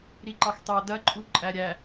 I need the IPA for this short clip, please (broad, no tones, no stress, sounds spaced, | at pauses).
ɾ i ǃ ɑ x t ɑ d ɐ ǃʼ u ǃʼ æ ɾʲ æ